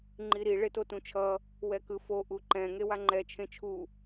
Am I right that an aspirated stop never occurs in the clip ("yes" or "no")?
no